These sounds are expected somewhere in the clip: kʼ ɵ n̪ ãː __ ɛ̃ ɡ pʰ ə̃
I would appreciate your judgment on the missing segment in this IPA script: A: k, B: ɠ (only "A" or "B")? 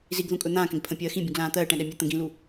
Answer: A